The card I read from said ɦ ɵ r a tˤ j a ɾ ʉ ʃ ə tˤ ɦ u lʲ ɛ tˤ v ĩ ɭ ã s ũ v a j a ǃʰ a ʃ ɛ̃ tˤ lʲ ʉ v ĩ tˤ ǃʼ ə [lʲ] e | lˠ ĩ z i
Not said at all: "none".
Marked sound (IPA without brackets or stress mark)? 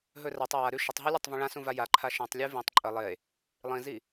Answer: lˠ